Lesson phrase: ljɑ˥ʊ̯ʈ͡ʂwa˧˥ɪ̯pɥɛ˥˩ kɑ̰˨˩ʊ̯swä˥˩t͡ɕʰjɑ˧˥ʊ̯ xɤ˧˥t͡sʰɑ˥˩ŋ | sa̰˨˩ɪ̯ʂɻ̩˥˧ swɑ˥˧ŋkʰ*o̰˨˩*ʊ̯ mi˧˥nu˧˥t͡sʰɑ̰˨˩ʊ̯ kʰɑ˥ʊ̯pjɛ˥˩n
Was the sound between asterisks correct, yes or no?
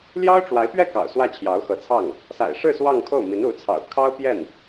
no